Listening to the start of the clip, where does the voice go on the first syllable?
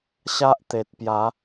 high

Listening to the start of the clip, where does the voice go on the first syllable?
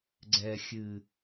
low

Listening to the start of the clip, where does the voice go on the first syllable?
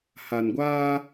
low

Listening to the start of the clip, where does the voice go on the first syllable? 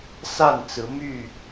falling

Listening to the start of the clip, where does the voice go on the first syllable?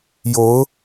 rising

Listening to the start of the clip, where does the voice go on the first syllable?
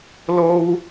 high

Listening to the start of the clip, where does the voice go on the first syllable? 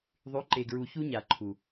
rising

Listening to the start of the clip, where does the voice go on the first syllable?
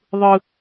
high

